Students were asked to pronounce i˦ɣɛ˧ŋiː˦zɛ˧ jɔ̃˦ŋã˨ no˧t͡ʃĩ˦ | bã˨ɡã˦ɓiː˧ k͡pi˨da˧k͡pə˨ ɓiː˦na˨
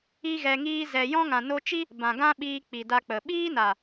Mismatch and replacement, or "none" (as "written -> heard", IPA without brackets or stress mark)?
ĩ˦ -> i˦